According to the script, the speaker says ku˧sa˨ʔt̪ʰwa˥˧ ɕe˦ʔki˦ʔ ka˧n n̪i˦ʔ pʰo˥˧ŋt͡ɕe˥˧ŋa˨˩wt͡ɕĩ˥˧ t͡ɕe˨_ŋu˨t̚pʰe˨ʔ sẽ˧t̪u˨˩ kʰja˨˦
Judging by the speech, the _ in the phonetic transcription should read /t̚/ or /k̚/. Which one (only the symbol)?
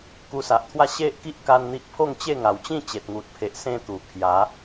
t̚